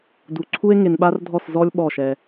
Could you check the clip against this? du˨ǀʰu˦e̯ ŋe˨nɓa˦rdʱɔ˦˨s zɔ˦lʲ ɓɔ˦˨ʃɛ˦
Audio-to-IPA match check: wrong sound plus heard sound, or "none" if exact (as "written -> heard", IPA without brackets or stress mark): none